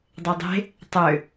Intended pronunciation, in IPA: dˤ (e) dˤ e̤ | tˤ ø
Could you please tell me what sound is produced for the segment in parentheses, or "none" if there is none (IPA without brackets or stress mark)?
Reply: e